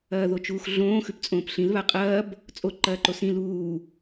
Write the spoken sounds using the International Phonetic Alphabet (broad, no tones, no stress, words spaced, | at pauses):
ɐːðot͡ʃuːxɮõː xʉpt͡sʼõːpɬĩl βaqʼɐːb | t͡sʼo ǃɐːǃosĩ luː